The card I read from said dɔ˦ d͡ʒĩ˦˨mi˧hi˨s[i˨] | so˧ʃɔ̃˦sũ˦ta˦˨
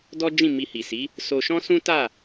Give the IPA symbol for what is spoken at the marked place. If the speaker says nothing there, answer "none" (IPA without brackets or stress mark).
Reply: i˨˦